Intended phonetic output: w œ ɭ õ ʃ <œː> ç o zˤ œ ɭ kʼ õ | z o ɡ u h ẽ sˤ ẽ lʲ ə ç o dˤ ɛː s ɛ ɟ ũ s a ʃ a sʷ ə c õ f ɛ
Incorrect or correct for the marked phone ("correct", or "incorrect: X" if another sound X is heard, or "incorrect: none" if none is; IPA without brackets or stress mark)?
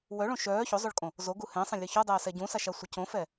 correct